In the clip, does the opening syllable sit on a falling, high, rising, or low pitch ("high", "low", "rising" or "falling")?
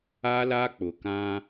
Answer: high